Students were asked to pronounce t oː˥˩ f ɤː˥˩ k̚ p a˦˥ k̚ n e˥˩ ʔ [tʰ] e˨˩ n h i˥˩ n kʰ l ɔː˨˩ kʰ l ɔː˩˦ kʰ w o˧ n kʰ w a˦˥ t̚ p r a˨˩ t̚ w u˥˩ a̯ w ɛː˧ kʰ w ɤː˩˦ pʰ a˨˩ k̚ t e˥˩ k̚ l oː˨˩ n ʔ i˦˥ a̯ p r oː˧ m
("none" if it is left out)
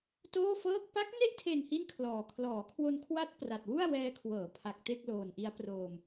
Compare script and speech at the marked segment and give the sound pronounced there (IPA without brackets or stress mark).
tʰ